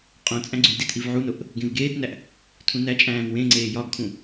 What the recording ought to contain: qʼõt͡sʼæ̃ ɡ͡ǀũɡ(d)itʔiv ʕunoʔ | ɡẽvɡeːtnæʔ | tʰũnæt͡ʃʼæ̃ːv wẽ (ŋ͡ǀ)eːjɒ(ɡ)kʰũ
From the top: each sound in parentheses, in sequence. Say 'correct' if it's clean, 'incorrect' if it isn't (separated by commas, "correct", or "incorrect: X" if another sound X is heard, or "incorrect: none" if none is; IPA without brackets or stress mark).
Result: correct, correct, correct